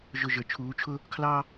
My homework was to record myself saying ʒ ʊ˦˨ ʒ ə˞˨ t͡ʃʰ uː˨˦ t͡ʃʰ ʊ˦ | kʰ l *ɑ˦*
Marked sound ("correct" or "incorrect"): correct